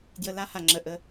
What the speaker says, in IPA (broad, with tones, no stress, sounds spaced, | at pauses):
d j ə˨ l a˦ h a˨ ŋ͡ǁ ə˨ ʔ ə˦